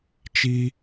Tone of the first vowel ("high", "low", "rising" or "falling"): high